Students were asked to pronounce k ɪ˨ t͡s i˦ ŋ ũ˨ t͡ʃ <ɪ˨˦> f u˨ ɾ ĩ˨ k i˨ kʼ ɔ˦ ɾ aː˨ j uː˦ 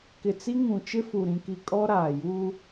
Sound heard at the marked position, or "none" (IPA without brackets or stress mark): ɪ˦